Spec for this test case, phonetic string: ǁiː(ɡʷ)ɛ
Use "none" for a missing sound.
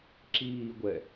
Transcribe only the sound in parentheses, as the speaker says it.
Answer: ɡʷ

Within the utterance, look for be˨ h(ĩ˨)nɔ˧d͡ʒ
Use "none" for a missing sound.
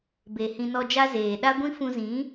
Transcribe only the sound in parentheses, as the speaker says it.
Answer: ĩ˧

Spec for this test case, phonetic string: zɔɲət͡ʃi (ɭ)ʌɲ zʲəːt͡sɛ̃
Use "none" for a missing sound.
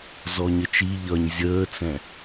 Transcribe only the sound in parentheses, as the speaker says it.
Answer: ʎ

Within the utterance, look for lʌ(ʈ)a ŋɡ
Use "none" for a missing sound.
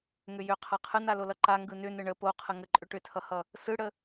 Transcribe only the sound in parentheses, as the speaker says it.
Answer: ǃ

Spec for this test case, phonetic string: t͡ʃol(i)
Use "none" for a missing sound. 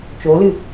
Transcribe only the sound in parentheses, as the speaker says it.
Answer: ɨ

